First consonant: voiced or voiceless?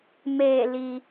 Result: voiced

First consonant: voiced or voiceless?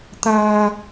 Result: voiceless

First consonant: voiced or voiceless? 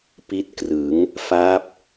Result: voiceless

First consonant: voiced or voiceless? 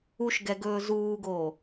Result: voiceless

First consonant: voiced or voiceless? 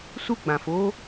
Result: voiceless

